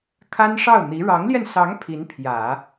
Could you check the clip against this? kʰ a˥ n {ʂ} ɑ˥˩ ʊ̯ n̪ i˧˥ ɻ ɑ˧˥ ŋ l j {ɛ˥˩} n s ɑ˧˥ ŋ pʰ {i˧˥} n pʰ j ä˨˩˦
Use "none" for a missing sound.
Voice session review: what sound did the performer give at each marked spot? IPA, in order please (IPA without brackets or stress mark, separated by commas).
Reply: ʂ, ɛ˧, i˧˥